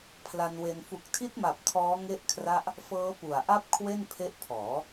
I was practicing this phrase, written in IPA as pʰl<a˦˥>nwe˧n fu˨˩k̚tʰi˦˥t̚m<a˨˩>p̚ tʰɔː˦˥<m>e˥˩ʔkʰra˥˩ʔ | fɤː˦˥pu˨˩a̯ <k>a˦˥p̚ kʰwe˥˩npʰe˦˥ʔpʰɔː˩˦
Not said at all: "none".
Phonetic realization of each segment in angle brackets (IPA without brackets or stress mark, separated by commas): a˧, a˨˩, ŋ, ʔ